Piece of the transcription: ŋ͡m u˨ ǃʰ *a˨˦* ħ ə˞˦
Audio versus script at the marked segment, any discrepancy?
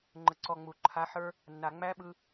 no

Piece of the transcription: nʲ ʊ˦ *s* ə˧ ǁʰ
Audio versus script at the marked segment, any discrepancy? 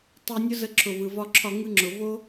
yes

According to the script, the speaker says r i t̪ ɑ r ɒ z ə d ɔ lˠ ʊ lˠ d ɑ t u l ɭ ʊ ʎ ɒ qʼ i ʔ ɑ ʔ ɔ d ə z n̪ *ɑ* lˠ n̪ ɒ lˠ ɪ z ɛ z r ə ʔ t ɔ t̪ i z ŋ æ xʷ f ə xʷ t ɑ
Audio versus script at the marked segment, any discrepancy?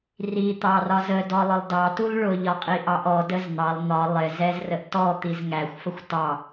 no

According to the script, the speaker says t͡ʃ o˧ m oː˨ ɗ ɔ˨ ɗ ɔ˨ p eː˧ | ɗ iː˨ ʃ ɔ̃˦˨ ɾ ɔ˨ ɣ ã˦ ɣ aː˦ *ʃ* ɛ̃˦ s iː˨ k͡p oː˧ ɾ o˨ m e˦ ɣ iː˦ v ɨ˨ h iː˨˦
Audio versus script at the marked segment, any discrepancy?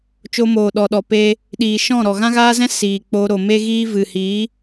yes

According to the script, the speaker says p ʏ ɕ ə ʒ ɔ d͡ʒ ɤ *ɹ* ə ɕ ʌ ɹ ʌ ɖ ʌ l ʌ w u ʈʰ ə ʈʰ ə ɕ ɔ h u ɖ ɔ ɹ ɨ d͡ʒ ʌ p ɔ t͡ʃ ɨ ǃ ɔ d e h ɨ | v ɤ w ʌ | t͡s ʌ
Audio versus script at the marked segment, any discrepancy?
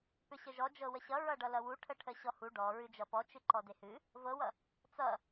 yes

